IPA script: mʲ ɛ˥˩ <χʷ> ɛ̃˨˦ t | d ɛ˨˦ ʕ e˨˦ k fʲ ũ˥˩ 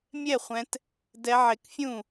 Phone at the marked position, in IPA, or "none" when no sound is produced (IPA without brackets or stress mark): χʷ